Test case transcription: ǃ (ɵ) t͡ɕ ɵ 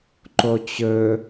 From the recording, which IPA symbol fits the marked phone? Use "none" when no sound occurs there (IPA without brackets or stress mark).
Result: o